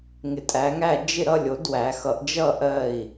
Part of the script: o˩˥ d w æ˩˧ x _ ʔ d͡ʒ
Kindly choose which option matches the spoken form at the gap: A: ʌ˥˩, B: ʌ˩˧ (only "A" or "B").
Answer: B